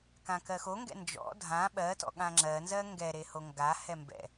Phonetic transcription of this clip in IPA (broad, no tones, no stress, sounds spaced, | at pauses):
k ã k ɜ x o ŋ ɡ ɛ̰ n d͡ʒ ɔ̰ dʱ ã ɓ ɜ t ɔ̰ ɠ ã ŋ͡ǁ ɜ n z ɜ ŋ ɡ ɛ ɾ e h o ŋ ɡ a h ɛ m b ɛ̰